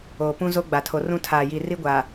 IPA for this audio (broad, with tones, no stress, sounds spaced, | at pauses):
oː˨ p ũ˦ z o˦ ɡ͡b a˨ tʰ o˨ r ũ˦ tʰ aː˨ j i˨ r i˦ ɡʷ a˨